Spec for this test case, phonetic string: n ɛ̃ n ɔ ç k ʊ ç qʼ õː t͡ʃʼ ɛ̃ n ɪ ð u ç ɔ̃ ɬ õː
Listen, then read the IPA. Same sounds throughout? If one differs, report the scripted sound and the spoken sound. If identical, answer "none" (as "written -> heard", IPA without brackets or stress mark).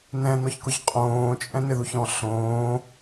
none